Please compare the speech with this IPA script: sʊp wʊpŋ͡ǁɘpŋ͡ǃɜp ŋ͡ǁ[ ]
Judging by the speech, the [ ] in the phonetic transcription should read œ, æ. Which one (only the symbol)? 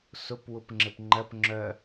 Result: œ